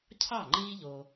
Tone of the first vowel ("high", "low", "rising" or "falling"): falling